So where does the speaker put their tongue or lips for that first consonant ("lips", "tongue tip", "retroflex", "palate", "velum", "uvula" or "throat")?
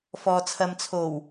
lips